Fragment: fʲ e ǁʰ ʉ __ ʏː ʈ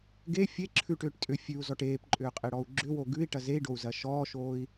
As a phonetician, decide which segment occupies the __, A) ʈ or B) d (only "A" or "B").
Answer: A